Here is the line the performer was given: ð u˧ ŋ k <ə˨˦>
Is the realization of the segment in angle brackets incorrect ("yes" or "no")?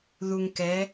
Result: yes